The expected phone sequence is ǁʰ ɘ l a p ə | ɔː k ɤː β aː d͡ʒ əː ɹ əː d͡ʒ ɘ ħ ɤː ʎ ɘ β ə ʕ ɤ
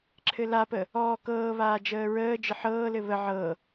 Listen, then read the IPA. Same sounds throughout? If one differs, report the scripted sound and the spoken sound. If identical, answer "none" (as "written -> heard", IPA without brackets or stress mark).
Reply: ʎ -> l